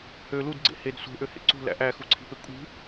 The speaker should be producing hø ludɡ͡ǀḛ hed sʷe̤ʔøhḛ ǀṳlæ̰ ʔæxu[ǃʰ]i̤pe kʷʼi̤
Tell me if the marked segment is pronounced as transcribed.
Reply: no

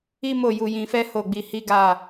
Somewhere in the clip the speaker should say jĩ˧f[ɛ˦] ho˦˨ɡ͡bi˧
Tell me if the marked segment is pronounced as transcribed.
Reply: yes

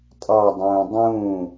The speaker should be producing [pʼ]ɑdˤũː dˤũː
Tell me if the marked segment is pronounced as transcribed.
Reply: no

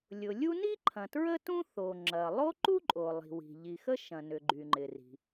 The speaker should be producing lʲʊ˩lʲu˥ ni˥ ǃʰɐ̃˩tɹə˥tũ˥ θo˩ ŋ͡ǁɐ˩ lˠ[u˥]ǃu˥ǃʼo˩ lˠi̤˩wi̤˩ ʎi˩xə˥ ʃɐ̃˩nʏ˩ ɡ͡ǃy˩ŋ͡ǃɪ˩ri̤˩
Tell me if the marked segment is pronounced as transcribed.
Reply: no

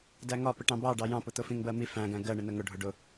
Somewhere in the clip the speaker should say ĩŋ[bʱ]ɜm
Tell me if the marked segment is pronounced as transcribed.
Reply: no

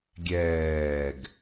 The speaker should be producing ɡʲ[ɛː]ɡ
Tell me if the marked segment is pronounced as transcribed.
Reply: yes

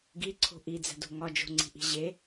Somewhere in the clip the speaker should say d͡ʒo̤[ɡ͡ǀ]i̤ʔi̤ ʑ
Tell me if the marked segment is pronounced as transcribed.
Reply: no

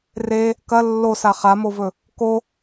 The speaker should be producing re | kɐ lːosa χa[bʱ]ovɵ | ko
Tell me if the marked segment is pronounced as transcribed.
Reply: no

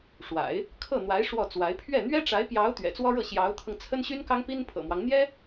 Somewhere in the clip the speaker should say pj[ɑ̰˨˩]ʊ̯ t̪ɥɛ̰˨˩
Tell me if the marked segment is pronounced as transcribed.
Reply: no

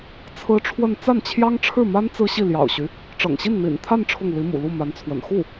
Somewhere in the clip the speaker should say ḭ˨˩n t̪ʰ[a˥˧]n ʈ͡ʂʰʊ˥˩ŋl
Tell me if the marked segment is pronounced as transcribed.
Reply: yes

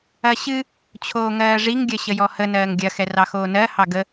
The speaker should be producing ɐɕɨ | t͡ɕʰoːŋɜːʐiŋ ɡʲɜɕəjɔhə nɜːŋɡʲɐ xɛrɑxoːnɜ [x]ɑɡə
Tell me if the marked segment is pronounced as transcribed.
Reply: no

